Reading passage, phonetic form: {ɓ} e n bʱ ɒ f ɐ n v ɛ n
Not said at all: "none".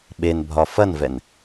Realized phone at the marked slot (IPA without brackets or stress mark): ɓ